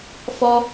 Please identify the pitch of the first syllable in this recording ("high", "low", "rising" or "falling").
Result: high